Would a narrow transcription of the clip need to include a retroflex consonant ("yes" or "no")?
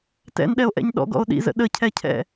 no